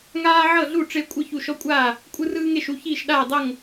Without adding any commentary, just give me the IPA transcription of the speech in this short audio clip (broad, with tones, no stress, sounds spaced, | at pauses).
ŋ aː˦ ʕ ɤ˥˩ ɮ u˥˩ ʈ͡ʂ e˦ kʷʼ ɯ˥˩ ç u˥˩ ʃ ɔ˦ kʷʼ aː˥˩ | kʷʼ ɯ˦ r ɯː˦ ŋ e˥˩ ʃ u˥˩ ç iː˥˩ ʃ ɗ aː˥˩ dˤ ɤ˥˩ ŋ